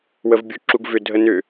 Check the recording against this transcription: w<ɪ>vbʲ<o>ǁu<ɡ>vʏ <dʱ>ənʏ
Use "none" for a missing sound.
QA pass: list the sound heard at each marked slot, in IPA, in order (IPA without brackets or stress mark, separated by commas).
ə, u, ɡ, dʱ